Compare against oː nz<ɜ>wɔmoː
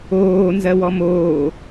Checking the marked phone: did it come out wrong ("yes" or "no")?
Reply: no